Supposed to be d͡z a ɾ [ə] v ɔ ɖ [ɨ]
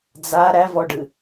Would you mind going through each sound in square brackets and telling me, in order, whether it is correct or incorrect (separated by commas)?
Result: incorrect, correct